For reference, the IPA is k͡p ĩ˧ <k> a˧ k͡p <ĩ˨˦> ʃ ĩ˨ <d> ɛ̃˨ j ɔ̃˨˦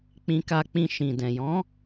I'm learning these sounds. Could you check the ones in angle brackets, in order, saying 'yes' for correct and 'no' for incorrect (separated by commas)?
yes, no, yes